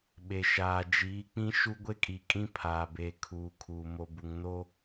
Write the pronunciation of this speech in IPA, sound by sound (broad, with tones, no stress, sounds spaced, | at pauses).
ɓ e˨ ʃ aː˨ d͡ʒ iː˨˦ k͡p ĩ˦ ʃ u˦ ɡʷ e˦ kʼ i˨ kʼ ĩ˦ pʰ aː˨ b eː˨ kʰ uː˨ kʰ uː˨ m o˨ b u˨ ŋ n o˦